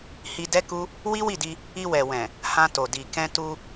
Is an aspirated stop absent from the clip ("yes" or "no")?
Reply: yes